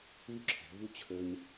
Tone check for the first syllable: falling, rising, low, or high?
falling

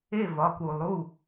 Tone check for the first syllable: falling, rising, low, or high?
falling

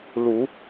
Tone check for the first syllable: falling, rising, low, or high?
rising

